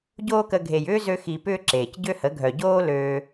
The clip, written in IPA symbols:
ɟ oː˦ k ə˧ ɡʱ e˨ j ʏː˦ z ø˧ x i˨ p ʏː˦ ǁ eː˨ c ɟ ø˦ h ə˨˦ ɡʱ œ˨ ɟ oː˦ l øː˧

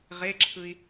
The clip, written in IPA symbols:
ʁ e ǁʰ ɯ i̯

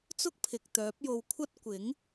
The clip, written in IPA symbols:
t͡s ʊ˥ k̚ pʰ ɪ˨ k̚ t̪ œː˨˥ p̚ j o˧ w kʷʰ ɐ˥ t̚ kʷ ɪ˨˥ ŋ

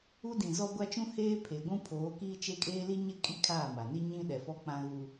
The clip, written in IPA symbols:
u˦ d ĩ˨ z ɔ˦ ɡʷ a˦ t͡ʃ ũ˦ h eː˦ pʰ e˨ ɡʷ ũ˦ pʰ oː˨˦ k iː˦ t͡ʃ e˦ kʼ eː˦ l i˦ ɲ ɪ˦ kʼ i˦ kʰ aː˦˨ m a˨ n i˦ ɲ ĩ˦ ɗ ɛ˨ f ɔ˦ k͡p ã˦ ɣ u˦

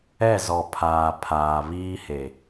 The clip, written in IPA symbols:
ɛ˦˨ z ɔ˨ pʰ aː˨ pʰ aː˨ β iː˦ h e˨

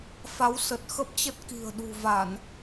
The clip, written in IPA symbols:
f a˨˦ w s ə˨˩ t̚ x ə˦˥ p̚ t͡ɕ ə˦˥ t̚ k i̤˨˩ ə̯ ɗ ṳ˨˩ v a˧˩˨ n

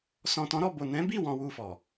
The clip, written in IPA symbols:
s ɔ̃˨ t ɔ̃˨˦ ɾ ɔ˦˨ b o˨ n ɛ̃˨˦ b i˦˨ w ɔ̃˧ w u˧ f ɔ˨

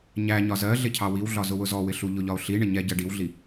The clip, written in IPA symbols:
ɲ æ ɲ ɒ z ɜ ɮ ɪ cʰ ɑ w i w ɮ ɒ z ʊ w ʊ z ɔ w ɪ ɬ u ʎ ʊ ʎ ɒ o̯ ɬ i ɳ ɪ ɲ ɛ ɟ ɜ ɖ i w ɮ i

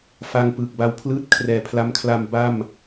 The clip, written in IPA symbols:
f a˧ ŋ p ɯː˨˩ k̚ b a˧ w pʰ l ɯː˦˥ t̚ kʰ r ɛː˨˩ pʰ l a˦˥ m kʰ l a˧ m b a˥˩ m

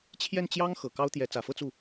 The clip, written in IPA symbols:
t͡ɕʰ j ɛ˥˩ n t͡ɕ j ɑ˥ ŋ x ɤ˨˩ k ɑ˥ ʊ̯ t̪ j ɛ˧˥ t͡s ä˨˩ f ɤ˥˧ t͡s u˥˩

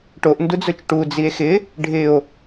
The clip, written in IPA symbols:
ʈ o ʔ n d u d͡z ʊ t͡ʃ ʈ u d͡z i e̯ x ɪ | ɖʱ ɪ o̯

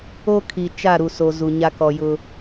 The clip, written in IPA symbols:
o˦ kʰ i˨ t͡ʃ a˦˨ ɾ u˨ s o˨ z u˨ ɲ a˦ k ɔ˨ j ʊ˦

